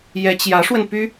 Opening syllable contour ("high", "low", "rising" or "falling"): rising